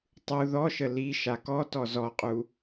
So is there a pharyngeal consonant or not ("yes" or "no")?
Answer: no